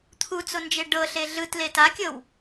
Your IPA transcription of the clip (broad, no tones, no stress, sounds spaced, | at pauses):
t̪ʰ u t͡s o n d͡ʒ e ɖ ɤ ɬ e ɮ ɯ t l e t a kʲ ɤ w